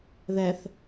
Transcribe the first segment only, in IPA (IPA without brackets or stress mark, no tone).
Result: ð